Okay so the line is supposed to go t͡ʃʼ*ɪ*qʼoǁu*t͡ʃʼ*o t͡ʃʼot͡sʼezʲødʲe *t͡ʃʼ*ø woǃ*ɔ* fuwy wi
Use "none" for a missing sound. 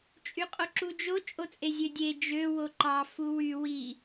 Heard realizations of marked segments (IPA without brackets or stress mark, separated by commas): y, d͡ʒ, d͡ʒ, ɑ